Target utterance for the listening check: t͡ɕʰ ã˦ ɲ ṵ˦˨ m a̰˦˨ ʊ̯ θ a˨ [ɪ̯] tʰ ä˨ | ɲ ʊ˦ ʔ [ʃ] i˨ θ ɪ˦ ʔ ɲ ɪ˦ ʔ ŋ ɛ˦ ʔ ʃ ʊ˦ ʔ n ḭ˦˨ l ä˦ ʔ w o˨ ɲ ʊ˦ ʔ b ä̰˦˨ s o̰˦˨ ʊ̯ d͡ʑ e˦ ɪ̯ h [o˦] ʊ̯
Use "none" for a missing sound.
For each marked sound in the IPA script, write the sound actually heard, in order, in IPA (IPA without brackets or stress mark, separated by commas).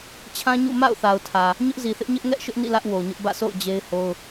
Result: ʊ̯, z, o˦